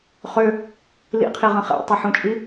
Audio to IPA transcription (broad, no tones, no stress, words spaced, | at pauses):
χø | lḭqʰiʁə̃ χḛtˤiħũt͡ʃʼi